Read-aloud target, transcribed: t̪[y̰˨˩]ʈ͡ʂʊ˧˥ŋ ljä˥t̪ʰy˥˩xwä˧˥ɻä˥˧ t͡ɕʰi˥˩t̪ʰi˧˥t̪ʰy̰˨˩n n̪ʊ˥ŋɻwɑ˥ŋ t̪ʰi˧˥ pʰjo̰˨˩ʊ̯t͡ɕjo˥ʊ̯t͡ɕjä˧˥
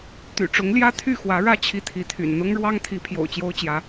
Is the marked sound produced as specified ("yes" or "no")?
yes